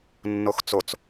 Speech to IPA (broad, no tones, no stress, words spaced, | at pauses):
nːoxt͡sot͡s